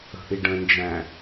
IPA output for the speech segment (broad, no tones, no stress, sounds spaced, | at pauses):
ə̤ ʔ i ɖ ə̃ n d͡ʒ æ̃